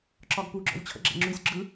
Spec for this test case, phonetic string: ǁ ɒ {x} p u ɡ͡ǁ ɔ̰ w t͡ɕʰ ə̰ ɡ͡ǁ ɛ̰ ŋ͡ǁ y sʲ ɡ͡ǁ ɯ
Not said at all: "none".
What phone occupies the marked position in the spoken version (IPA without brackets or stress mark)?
ɡ